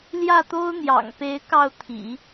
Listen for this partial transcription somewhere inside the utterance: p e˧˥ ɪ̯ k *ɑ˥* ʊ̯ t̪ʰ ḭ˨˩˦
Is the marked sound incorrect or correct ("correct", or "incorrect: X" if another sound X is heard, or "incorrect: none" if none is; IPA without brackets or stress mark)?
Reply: incorrect: ɑ˥˩